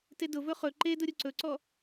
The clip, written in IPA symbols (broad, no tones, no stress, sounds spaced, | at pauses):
t e d ʊ v ɵ χ ɵ ǃ e d ʊ ɾʲ ʊ ǀ ɵ ǀ ɔ